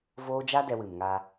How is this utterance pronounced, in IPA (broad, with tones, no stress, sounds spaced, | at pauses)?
v oː˦ d͡ʒ a˦ d ɛ˧ w ɨ˨ m ŋ a˧